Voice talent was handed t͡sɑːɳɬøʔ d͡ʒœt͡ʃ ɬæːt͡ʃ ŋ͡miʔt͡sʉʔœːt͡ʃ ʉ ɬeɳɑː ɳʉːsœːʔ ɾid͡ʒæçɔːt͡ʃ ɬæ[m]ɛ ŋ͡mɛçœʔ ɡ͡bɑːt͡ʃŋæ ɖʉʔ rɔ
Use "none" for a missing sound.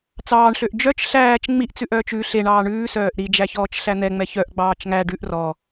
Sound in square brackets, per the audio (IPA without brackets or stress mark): n̪